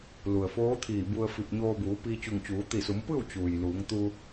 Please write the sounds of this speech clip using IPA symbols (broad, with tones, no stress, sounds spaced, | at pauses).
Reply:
l u˩ ə̯ f oː˧˥ t̪ʰ iː˧˩ b u˧ ə̯ f i˧˩ p̚ ɲ oː˧ b uː˩˧ p iː˧ t͡ɕ u˧˩ ŋ t͡ɕ uː˩˧ t̪ i˧˩ s u˩˧ m p ɯː˥˨ w t͡ɕ uː˩ j l uː˩˧ ŋ t̪ u˧